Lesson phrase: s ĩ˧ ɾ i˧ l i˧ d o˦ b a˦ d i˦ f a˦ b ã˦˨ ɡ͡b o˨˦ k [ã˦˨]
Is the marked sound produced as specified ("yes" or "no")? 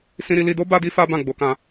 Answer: no